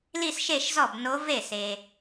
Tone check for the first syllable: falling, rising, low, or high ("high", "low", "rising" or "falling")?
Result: falling